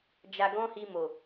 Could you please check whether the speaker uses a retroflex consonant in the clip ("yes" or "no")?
no